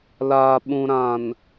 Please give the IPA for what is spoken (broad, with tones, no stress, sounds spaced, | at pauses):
l aː˨ ɓ ũ˨ ɾ ã˨ n